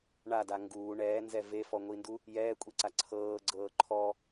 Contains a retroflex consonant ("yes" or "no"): yes